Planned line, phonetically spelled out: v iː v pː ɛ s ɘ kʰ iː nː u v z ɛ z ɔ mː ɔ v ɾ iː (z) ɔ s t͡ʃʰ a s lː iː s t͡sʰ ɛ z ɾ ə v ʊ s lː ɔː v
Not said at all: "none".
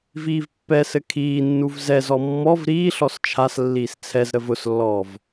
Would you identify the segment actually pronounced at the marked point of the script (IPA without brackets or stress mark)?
ɬ